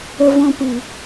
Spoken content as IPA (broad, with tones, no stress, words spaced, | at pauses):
ə˦vɔ̃˦ pɨ˨